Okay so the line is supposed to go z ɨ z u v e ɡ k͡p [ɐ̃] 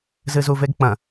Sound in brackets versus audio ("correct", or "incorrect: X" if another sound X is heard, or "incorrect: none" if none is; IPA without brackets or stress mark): correct